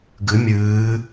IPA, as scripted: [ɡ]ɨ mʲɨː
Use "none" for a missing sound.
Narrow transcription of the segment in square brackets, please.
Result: ɡ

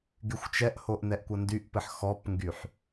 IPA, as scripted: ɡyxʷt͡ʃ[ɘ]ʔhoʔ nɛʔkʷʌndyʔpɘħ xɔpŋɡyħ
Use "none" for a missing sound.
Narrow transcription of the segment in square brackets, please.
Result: ɛ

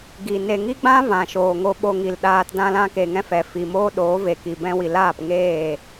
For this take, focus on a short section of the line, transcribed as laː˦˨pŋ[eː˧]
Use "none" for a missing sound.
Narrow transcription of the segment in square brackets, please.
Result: eː˦˨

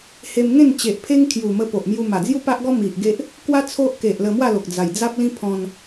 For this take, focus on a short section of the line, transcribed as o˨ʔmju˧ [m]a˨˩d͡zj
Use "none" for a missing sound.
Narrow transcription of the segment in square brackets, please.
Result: m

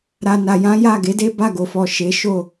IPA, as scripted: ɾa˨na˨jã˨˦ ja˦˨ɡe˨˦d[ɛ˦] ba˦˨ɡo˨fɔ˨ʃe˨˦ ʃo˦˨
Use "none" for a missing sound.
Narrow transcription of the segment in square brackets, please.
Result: e˦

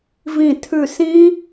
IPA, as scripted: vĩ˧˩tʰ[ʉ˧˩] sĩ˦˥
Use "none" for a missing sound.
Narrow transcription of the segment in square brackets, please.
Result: ʉ˧˩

